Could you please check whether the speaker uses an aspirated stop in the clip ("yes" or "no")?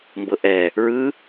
no